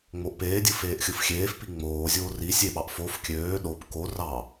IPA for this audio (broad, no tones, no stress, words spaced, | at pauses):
ŋ͡moʔpeːdʲɯ feːʔxʲɯfxʲeːfpi ŋ͡moːzʲoː ri sʲeɓɑʔ fof kʲøː ɗop ko rɑ